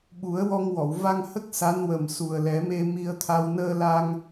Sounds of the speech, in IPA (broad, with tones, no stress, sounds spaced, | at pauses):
ɓ u˨˩˦ ə̯ w ɔ˧ ŋ w ɔ˨˩˨ w v a˧ ŋ h ə˦˥ k̚ s a˧˥ n w ə˨˩ m s u˨˩ ə̯ l ɛ˨˩˦ m e˧ m i˧ ə̯ t̪ʰ a˧ w n əː˧ l a˧ ŋ